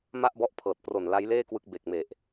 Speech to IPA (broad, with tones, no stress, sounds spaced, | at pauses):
m a˥˩ ʔ b ɔ˦˥ ʔ pʰ ɤː˨˩ t̚ p r o˨˩ n l a˦˥ j l eː˥˩ k w ɯ˦˥ k̚ b e˨˩ k̚ m e˨˩ ʔ